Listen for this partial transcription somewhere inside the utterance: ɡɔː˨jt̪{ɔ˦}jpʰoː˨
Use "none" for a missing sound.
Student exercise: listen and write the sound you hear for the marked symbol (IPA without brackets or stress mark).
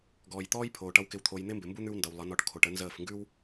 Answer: ɔː˦